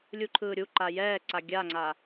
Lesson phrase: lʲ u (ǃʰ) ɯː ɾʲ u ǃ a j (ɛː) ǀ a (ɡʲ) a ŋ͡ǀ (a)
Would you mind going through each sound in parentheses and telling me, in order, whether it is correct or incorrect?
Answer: correct, correct, correct, correct

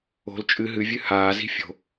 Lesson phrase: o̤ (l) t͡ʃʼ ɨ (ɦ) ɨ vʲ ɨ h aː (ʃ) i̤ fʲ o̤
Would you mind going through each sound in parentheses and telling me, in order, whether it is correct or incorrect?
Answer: correct, correct, incorrect

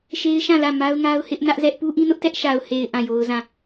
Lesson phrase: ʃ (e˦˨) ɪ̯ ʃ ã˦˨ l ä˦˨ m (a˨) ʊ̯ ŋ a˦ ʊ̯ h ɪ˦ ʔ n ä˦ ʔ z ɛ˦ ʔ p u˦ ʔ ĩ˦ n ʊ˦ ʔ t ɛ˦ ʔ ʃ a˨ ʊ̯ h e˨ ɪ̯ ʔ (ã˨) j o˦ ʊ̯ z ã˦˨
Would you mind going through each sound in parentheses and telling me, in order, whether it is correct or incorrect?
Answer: incorrect, incorrect, incorrect

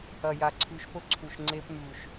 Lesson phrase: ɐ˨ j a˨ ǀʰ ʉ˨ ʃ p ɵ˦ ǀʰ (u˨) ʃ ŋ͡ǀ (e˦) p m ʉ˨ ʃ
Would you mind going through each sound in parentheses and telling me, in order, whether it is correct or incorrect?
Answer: correct, correct

